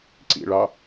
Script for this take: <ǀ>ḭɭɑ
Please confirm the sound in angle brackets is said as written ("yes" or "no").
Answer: yes